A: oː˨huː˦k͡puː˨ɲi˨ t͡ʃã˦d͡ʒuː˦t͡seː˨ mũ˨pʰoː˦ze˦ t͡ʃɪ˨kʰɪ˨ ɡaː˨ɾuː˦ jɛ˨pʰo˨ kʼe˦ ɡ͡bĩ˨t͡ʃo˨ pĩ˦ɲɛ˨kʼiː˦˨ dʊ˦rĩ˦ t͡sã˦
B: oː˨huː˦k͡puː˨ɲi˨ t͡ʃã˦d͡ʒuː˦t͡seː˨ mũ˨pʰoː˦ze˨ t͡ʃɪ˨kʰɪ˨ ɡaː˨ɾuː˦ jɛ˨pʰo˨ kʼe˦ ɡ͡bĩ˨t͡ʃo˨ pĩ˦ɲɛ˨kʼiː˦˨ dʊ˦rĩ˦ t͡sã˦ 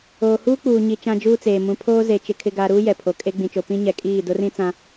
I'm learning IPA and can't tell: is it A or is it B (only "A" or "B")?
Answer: B